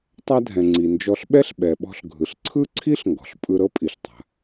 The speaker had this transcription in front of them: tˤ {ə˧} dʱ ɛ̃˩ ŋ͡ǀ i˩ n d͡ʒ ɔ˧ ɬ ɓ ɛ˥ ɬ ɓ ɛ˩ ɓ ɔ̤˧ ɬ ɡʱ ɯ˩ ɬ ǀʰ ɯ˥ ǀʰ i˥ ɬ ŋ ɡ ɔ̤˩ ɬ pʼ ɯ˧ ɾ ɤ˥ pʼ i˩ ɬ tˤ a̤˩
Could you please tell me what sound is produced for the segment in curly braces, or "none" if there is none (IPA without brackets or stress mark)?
a˧